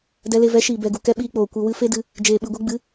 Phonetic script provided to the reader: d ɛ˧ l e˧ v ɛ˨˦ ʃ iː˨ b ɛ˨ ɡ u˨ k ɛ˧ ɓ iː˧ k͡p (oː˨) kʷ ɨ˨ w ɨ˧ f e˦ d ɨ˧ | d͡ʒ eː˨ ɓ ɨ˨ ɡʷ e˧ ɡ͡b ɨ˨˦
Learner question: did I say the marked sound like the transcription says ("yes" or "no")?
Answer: yes